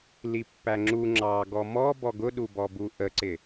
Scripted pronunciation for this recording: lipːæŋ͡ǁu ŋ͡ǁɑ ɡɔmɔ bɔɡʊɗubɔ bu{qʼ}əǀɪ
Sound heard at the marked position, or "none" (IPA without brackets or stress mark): ʔ